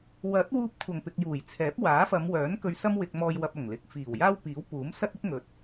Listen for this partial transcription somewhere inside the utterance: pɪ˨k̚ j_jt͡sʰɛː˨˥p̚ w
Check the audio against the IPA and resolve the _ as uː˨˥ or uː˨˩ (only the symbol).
uː˨˩